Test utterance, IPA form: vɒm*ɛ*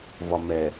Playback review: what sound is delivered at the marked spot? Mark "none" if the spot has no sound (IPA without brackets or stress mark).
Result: ɛ